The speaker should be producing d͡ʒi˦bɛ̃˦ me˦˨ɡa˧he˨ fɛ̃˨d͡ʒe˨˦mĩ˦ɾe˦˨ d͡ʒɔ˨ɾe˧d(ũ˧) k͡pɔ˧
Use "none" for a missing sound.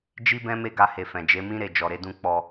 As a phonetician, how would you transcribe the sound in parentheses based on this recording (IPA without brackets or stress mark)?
ũ˧